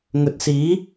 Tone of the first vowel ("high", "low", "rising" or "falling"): rising